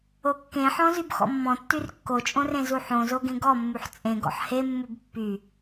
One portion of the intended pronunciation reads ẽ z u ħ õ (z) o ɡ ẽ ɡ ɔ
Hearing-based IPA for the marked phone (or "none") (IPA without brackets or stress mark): z